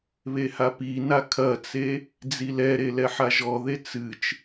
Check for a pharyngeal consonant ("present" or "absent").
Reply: present